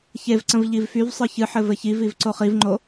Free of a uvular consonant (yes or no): no